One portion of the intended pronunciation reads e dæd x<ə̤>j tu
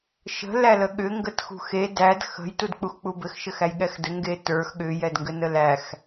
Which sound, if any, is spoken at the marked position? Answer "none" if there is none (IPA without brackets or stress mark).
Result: ə̤